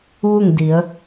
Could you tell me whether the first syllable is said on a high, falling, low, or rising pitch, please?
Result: falling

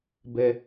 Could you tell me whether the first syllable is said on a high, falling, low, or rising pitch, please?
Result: low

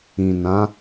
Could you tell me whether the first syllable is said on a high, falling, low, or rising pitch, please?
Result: low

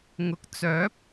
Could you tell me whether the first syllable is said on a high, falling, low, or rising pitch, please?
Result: rising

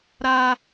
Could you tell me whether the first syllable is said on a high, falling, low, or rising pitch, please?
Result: high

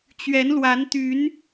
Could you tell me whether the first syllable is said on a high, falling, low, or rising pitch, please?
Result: rising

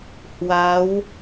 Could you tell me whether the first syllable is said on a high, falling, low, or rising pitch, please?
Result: rising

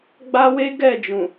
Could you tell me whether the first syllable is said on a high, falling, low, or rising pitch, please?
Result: high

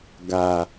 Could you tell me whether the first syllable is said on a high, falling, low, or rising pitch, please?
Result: low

